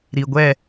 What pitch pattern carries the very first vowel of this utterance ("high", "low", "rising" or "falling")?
low